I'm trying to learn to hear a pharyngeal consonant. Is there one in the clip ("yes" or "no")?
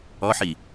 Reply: yes